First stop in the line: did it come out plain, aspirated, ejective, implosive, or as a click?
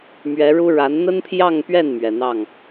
aspirated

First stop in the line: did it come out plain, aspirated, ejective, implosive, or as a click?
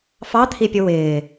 aspirated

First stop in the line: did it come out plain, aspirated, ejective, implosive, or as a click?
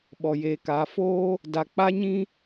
implosive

